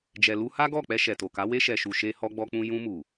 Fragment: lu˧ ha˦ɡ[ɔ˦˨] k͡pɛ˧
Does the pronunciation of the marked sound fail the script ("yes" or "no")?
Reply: no